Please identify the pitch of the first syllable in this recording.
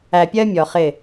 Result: low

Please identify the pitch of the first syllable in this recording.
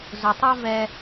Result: low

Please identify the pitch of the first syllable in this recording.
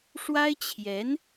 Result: high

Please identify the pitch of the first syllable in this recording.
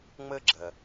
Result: high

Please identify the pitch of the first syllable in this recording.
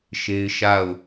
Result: high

